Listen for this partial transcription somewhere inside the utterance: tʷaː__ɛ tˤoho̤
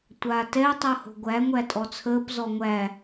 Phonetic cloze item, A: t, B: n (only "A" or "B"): A